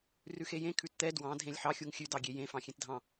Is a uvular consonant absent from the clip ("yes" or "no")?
yes